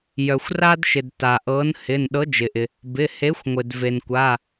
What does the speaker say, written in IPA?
j œ˩ xʷ r a˥ d ʃ ɪ˩ d t a˩ ʔ ɤ˨˥ n h ɪ˩˧˩ n ɗ ɤ˨˥ d͡ʒ ɪ˩ ʔ ɪ˩ | b ɪ˩˧˩ h e˨˥ xʷ ŋʷ ɪ˩ d v e˩ n kʷ a˩˧˩

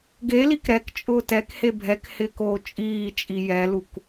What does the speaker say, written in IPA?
ɡ e l i k ɾ ɛ k t͡ʃʼ ʊː t ɛ k h e bʱ ɛ k h ɪː k oː t͡ʃʼ iː t͡ʃʼ i j ɛ l u k

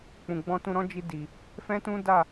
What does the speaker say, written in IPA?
k͡p ũ˨ ɡ͡b ɔ̃˧ t ũ˧ ɾ ɔ̃˦ d͡ʒ i˧ d i˨ | f ɛ̃˦ t ũ˦ d a˦˨

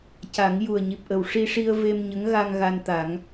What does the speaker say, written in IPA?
c a˨˩˦ ŋ j u˨˩ ə̯ ɲ i˨˩ p̚ ʔ ə˨˩ w ʂ i˧ ʂ i˧ ə̯ v e˧ m ɲ ə˧˥ ŋ ɣ a˧ ŋ ɣ a˧ n t̪ a˨˩˦ ŋ

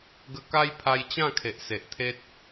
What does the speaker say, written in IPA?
ɡ ə˧ k a˦ j pʰ a˧ j t͡ɕ ã˥˧ kʰ e˨ ʔ s e˨ ʔ t̪ʰ e˦ t̚

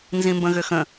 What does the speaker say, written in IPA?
n z ĩ m b ə̃ ɣ ʏ x ə̃

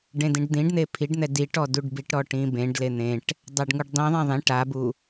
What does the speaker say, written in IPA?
ɖ ẽ d ĩ ɖ d̪ ĩ ɖ n̪ e pʰ i ɖ n̪ ɛ d i ʈ ɔ d u ɖ b i ʈ ɾ ɔ ʈ ĩ b ẽ ɖ l e n̪ ẽ ʈ | dˤ a ɖ ŋ u ɖ dˤ ĩ ðˤ ẽ ðˤ ĩ ʈ a b u

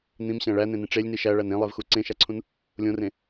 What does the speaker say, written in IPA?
n̪ ĩ m ɕ æ̃ ɭ æ n̪ ẽ n ĩ ʈ͡ʂ e lʲ n i ʃ æ ɭ æ n ẽ lˠ e v x u ǀ ẽ ʃ æ ǀʰ ũ n | lʲ õ r ẽ

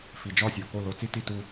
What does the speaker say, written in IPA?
f i˨ d͡ʒ ɒ˦˨ sʲ o˨ k o˦˨ l o˧ t͡s i˦ t i˧ t u˧

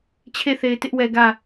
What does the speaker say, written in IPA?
t͡ɕʰ e˦˨ θ e˨ ɪ̯ t ɪ˦ ʔ w ɛ˨ ɡ ä˦˨

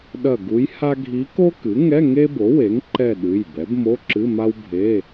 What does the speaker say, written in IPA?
ɗ ɐ˦˨ ɡ u˧˥ j h a˥ ɡʱ i˧˥ k o˥ k ɨ˩˥ ŋ ɛ˧˥˧ ŋ e˥ b o˩˥ w e˩˥ ŋ ǃ ɛ˦˨ ɗ ɨ˩˧˩ j b ɛ˩˥ b m o˧˥˧ ǁ ɨ˧˥˧ m a˥ w bʱ e˧˥˧

